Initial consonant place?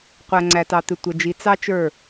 uvular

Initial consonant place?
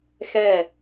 velar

